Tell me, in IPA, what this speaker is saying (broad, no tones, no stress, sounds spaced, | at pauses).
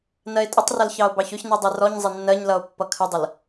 n ɜ e̯ tʼ ə tˤ r ʌ l ç ɑ o̯ b ɑ ç ʊ ç n i dˤ ɛ r ɔ ɲ zˤ ɪ nː ɜ ɲ l ʌ o̯ pː ʌ kʰ ə dˤ ə l